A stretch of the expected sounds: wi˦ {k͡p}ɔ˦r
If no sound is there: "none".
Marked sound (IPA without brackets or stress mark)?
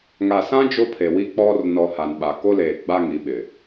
k͡p